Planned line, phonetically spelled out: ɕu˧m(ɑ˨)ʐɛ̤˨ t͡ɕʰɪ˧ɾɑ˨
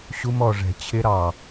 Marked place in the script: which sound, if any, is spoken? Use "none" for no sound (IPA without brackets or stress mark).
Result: ɔ˨